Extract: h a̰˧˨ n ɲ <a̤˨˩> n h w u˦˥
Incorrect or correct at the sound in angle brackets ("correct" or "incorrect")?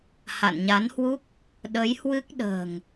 incorrect